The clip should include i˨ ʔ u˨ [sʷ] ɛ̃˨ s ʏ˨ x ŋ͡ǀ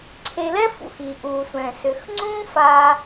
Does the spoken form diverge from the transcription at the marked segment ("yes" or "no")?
no